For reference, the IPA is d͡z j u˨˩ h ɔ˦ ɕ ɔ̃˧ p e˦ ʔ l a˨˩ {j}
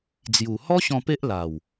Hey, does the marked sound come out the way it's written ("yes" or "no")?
no